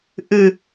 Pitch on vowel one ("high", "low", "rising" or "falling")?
low